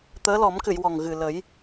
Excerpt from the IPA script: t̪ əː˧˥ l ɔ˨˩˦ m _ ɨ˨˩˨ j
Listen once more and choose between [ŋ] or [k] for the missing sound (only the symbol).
k